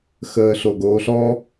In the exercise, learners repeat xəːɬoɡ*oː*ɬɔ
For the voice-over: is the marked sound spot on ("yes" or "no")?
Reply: yes